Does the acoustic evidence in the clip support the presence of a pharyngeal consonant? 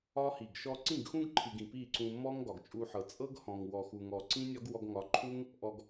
yes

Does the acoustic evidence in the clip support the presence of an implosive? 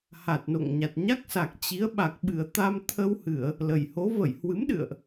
yes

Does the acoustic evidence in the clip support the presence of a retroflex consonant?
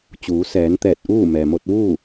no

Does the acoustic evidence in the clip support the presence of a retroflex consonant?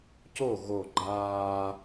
no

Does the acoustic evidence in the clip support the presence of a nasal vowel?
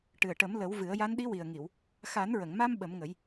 no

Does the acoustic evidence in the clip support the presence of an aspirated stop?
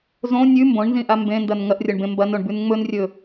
no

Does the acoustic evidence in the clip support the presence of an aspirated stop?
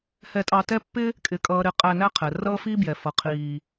yes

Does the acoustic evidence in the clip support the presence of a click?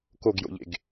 no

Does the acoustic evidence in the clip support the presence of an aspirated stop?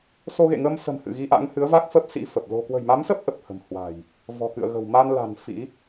no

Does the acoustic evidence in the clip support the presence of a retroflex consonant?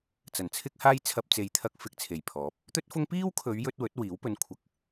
no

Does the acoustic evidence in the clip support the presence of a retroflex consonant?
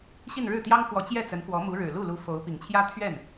yes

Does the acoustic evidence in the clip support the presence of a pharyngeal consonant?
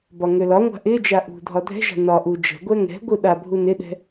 no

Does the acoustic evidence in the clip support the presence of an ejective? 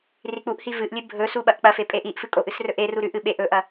yes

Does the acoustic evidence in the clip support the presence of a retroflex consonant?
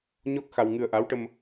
yes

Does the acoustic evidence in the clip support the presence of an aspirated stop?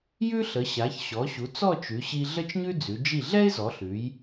no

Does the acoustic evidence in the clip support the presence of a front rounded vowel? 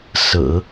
no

